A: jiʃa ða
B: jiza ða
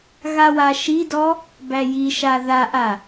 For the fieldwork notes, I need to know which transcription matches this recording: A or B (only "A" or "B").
A